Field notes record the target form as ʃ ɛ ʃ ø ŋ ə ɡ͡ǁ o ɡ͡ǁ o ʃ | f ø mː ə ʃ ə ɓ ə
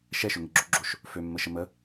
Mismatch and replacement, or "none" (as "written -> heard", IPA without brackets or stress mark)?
ɓ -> m